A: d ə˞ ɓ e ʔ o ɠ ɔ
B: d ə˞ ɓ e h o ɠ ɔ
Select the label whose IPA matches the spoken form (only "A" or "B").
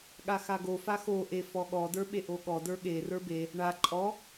A